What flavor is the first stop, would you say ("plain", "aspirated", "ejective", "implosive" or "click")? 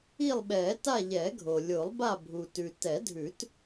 implosive